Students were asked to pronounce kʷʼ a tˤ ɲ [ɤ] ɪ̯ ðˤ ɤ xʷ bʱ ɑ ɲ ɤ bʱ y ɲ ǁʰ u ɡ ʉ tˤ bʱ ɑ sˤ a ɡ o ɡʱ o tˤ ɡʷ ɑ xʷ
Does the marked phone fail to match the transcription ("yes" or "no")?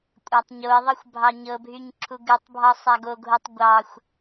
yes